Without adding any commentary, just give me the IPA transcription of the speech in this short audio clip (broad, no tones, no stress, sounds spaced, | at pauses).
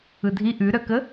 ɯ dʱ i ʔ ʉ ɾ œ k ə